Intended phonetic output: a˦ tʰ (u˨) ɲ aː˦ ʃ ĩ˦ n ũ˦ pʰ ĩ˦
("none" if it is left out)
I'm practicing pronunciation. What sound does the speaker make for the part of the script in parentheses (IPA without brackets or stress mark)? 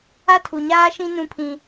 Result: u˨